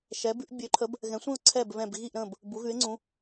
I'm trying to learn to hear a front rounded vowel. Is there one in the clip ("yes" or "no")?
yes